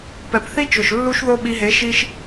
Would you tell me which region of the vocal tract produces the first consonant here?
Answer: lips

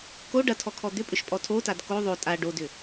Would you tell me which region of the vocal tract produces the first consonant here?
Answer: velum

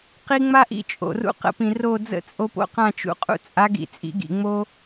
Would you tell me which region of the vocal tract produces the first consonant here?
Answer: uvula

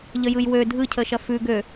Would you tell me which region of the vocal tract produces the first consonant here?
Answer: palate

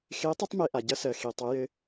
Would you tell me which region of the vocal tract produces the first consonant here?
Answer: velum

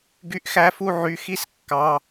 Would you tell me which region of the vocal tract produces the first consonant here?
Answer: velum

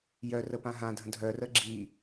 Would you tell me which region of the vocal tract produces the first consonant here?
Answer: palate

